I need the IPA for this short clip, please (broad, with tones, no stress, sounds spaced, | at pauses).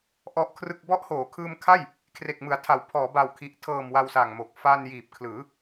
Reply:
ʔ ɔ˦˥ ʔ kʰ r ɯ˥˩ k̚ b ɔ˦˥ ʔ h oː˩˦ kʰ ɯː˧ m kʰ a˥˩ j | kʰ r e˨˩ k̚ m ɯ˩˦ a̯ tʰ a˩˦ w pʰ ɔː˩˦ b a˨˩ w kʰ i˨˩ ʔ tʰ ɤː˨˩ m w a˧ w s a˨˩ ŋ m o˨˩ k̚ f a˧ n j iː˨˩ p̚ kʰ l ɯː˩˦